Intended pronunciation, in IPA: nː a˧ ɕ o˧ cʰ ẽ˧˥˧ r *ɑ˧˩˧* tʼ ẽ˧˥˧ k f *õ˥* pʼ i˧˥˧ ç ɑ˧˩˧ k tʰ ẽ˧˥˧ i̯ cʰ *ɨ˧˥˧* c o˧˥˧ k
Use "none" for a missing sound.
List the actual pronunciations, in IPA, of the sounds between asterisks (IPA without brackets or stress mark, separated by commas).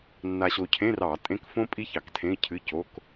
ɑ˧˩˧, õ˥, ɨ˧˥˧